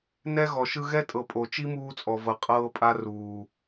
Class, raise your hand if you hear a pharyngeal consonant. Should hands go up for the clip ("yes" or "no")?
no